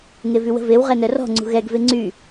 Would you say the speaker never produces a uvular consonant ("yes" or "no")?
no